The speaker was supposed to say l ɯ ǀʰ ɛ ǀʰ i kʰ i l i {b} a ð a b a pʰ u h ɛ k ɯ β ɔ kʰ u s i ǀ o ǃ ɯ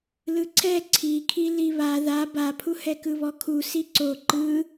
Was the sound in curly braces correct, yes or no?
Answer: no